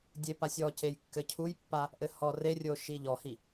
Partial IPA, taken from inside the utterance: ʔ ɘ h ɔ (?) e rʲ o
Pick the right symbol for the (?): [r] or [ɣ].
r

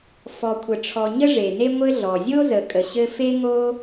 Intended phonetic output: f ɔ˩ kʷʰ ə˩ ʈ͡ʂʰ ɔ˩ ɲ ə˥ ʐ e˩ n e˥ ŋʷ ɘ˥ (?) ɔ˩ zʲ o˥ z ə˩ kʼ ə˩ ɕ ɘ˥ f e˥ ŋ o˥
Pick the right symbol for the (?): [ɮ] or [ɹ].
ɮ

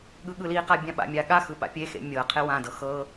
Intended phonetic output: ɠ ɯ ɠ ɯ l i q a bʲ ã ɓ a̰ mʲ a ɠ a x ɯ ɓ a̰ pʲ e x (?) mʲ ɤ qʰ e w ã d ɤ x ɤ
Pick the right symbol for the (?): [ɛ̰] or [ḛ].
ḛ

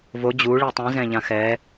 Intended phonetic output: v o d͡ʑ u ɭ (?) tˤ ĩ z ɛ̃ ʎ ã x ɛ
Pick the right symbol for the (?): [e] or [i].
i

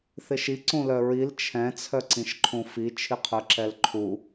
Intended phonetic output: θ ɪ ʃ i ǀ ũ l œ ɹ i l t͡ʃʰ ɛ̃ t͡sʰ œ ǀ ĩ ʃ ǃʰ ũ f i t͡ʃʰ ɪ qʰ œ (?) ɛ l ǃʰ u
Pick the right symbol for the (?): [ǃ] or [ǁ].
ǁ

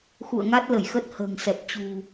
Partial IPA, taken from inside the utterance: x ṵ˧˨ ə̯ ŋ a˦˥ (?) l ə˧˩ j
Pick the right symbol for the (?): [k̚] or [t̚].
t̚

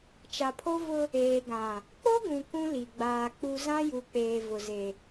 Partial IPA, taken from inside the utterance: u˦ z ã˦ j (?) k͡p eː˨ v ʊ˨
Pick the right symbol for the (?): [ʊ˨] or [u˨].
u˨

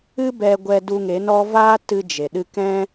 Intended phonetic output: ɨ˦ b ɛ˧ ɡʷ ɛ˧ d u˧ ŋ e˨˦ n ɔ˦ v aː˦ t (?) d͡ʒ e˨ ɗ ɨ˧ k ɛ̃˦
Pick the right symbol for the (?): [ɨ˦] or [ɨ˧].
ɨ˧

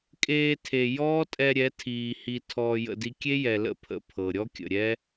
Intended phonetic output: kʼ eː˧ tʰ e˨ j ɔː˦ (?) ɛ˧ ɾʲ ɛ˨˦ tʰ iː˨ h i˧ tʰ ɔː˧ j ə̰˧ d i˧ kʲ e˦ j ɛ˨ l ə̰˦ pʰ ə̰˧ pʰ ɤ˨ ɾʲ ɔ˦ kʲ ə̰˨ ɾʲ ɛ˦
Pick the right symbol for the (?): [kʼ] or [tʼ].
tʼ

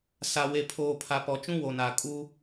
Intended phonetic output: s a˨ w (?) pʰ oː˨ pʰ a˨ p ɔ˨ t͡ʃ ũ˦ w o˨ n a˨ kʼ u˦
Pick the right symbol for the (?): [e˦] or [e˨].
e˨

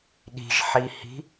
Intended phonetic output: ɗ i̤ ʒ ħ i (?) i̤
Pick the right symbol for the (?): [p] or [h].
h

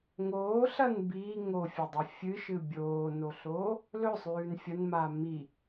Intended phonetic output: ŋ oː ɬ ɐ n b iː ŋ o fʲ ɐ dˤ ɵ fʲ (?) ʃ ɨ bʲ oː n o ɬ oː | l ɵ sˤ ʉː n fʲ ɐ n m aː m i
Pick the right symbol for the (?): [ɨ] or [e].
ɨ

